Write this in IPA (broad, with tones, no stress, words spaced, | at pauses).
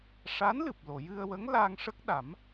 ʂa˧˥nlɨ˨˩p̚ lo˨˩˨jɨ˧ə̯wə˧˥ŋ laː˧ŋʂə˦˥k̚ ɗa˨˩˦m